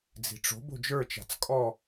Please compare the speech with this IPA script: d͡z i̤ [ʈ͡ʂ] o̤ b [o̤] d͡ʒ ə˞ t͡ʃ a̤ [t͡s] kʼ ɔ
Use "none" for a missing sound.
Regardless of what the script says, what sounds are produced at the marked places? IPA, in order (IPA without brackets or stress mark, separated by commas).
ʈ͡ʂ, o̤, t͡s